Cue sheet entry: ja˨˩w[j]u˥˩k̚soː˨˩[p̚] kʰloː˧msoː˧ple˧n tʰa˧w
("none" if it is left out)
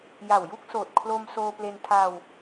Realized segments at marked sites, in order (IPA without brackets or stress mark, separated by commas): j, t̚